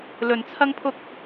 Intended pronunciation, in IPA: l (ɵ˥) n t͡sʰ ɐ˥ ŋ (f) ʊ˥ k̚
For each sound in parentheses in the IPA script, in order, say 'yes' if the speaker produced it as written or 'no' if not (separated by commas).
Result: no, no